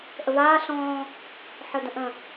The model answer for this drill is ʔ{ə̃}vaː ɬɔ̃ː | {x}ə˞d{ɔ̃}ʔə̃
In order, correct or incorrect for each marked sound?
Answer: incorrect, incorrect, incorrect

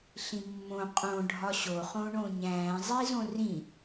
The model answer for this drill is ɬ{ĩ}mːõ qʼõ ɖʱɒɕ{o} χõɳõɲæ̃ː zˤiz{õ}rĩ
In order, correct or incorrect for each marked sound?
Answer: correct, correct, correct

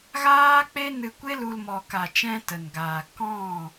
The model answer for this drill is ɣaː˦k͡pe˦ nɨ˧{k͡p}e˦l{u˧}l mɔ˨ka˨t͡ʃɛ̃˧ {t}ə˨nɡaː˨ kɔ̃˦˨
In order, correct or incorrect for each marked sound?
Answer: incorrect, correct, correct

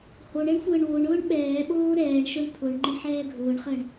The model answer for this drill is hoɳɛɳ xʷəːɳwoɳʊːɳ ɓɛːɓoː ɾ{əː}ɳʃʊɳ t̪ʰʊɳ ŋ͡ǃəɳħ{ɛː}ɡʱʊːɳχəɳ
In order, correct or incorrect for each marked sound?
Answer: incorrect, correct

